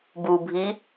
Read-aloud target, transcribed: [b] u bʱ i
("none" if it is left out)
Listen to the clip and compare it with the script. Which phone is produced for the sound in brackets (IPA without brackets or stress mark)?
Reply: b